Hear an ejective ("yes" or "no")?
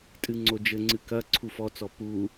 yes